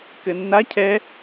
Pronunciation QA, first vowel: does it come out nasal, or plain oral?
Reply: oral